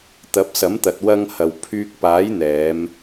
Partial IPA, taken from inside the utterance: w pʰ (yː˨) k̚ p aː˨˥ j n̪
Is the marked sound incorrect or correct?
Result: incorrect